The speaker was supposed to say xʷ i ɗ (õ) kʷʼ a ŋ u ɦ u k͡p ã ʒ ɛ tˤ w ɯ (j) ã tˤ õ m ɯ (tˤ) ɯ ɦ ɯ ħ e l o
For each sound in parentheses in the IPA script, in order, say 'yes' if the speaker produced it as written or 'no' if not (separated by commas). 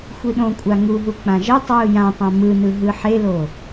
yes, yes, no